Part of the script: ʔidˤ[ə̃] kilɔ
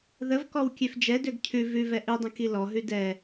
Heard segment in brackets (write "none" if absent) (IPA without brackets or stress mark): ə̃